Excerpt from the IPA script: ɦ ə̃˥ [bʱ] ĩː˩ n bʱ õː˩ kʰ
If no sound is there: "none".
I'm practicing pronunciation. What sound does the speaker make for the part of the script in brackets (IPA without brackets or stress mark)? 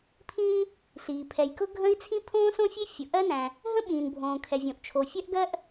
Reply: ɓ